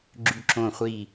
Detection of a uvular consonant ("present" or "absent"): present